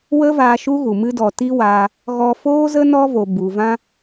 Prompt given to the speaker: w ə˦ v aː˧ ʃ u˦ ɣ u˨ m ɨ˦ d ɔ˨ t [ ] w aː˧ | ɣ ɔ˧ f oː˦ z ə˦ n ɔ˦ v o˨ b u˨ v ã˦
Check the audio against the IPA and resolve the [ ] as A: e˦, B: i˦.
B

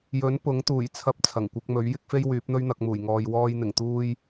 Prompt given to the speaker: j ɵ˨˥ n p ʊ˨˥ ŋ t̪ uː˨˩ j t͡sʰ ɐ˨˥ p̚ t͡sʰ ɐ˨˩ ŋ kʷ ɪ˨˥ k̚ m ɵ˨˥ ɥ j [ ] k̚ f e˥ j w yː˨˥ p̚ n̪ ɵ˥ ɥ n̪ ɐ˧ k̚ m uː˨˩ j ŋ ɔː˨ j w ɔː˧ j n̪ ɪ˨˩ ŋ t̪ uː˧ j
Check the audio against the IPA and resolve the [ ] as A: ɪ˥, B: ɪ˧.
A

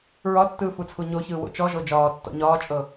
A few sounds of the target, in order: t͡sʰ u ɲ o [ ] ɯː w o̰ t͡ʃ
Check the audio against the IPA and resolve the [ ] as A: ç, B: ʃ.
A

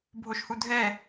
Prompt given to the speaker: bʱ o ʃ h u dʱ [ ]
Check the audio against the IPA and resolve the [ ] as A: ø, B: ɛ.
B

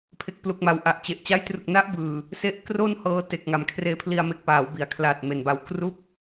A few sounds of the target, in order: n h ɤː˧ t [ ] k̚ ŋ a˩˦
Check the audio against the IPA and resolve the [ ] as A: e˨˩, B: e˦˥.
A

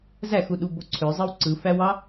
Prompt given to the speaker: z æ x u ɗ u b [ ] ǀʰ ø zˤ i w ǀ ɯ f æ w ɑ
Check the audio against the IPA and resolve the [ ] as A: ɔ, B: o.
B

